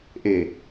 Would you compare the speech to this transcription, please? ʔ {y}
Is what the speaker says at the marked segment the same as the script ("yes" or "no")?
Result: no